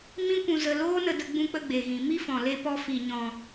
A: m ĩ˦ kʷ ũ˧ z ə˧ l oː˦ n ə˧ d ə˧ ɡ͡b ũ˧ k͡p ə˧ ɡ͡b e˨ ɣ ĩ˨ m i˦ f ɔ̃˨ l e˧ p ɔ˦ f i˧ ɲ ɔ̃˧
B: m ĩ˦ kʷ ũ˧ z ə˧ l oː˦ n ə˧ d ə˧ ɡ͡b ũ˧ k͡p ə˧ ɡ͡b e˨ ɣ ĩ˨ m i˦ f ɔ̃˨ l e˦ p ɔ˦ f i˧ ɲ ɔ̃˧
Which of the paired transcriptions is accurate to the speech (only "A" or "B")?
B